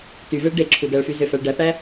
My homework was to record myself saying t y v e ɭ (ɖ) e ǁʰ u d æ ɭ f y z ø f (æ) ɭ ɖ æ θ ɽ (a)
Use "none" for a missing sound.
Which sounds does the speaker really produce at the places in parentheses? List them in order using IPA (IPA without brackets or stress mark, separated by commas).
ɖ, æ, æ